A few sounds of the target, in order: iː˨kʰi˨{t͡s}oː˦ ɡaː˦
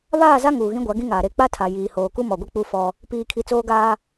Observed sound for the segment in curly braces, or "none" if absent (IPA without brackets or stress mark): t͡s